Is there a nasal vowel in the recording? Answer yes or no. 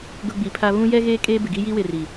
yes